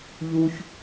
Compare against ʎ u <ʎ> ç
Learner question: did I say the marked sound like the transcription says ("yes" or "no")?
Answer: no